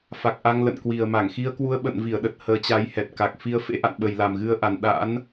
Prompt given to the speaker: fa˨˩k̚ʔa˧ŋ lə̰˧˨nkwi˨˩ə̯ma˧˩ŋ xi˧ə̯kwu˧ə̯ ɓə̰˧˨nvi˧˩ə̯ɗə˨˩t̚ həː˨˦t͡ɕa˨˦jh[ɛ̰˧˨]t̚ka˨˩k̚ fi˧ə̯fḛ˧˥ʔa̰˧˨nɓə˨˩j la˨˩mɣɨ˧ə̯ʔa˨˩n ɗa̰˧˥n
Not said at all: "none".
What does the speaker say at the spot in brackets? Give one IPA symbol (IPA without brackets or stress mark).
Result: ɛ˨˩